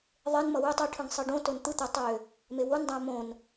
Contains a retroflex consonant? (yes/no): yes